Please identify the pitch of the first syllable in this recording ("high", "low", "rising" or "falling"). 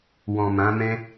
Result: low